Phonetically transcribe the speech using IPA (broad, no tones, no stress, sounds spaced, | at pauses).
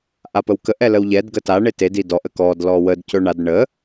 ʔ a p ə w k ə ʔ ɛ l ə w ʎ ɛ d ɡ ə t a ɳ e t e d i d ɔ ʔ ə k ɔ d l ɔ w ə d c ɵ ɳ a d ɳ ə